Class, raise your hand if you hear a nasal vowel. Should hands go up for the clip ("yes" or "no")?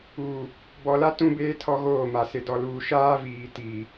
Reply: yes